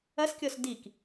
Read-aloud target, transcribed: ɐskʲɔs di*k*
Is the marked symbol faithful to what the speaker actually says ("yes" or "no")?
yes